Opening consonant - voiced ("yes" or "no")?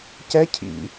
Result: no